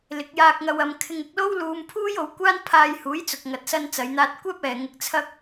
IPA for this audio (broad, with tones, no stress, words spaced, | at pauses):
lɪ˨˥k̚jaː˧k̚ŋɐ˧wɐ˧m kʰɪ˧ŋɪ˧k̚lo˥w luː˧mpʰuː˥jo˨˥wkʷaː˥n pʰaː˧jhuː˨˥jt͡sʊ˨k̚ ŋɐ˨t̚sɐ˧n t͡sɐ˨˧jn̪aː˧t̚kʷɛː˥p̚ ɛː˨ŋɪ˧k̚t͡sʰɐ˥k̚